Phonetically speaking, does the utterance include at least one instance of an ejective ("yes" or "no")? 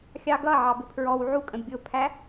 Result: yes